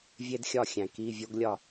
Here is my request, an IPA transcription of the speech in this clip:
vʲ e˥ d xʲ ɒ˥˨ xʲ æ̃˨ k i˧˥˧ vʲ o˥ ɡ lʲ ɒ˥˨

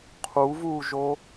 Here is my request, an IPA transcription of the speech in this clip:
qʰ u v uː ʒ o

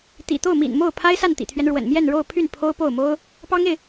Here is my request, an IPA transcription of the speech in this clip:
t̪ ḭ˨˩ t̪ o˥˩ ʊ̯ m ḭ˨˩ n m o˥˩ ʊ̯ pʰ a˥ ɪ̯ s a˥˩ n t̪ ḭ˨˩ t̪ʰ ɥ ɛ˦ n ɻ w ə̰˨˩ n m j ɛ˥˧ n ɻ o˥˧ ʊ̯ pʰ y˥˩ n pʰ o˥ ʊ̯ p o˥˩ ʊ̯ m o˥ ʊ̯ | p ɑ˥ ŋ e˨ ɪ̯

